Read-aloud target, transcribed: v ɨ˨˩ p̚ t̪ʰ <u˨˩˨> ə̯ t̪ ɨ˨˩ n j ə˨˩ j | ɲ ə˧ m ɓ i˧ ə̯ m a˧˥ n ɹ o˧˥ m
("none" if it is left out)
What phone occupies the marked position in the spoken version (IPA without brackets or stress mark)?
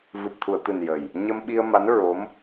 u˨˩˨